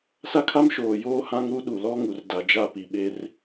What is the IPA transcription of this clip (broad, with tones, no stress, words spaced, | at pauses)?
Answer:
sa˦kʰa˦mʃoː˨ joː˦hã˦ŋɾu˦ ɗu˨lɔ˦ŋu˨rda˨ d͡ʒa˦˨pi˨ɓe˦r